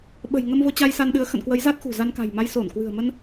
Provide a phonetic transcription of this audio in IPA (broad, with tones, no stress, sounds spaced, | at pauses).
ɓ ə̤˨˩ j ŋ ə˧ m v o˧ t͡ɕ a˧ j s a˧ n ɗ ɨ˨˦ ə̯ x ə̰˧˨ n k w ə˨˦ j z a˦˥ t̚ x ṳ˨˩ z a˧ n k a̤˨˩ j m a˧ j s o˧˩ n k w ɨ̤˨˩ ə̯ m ə˧ n